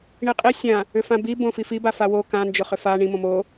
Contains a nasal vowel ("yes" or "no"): yes